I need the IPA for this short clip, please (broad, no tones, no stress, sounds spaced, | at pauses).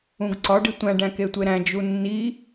ũ ɡ ǀ ɒ ɖ i tʷ æ̃ ɖ æ̃ k e tʷ e ɾ æ̃ d͡ʒ u nː i